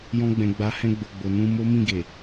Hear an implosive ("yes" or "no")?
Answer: no